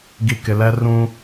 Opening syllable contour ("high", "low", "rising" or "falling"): low